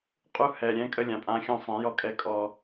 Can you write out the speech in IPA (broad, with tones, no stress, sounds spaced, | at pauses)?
qʼ u˦ h ɛ˨ ɾʲ ɛ̃˦ kʼ ə˦ lʲ ã˨ pʼ ã˦ xʲ ɔ̃˦ sˤ ɛ̃˨˦ j ɔ˦ kʼ ɛ˦ kʼ ɔ˦